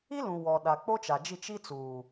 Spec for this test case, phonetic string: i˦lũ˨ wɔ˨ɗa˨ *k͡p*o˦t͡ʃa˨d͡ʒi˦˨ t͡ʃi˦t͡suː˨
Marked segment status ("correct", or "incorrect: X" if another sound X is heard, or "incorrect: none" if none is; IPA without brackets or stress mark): correct